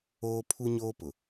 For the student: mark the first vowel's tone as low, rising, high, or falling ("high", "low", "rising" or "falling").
high